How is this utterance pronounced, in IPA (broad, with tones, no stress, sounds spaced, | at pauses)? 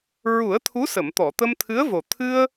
ɹ u˨˩˦ ə̯ t̪ʰ u˧˥ s ə˨˩˨ m t̪ ɔ˨˩˨ t̪ ə˧ m t̪ʰ ɨ˧˥ ə̯ v o˨˩ t̪ʰ ɨ˧ ə̯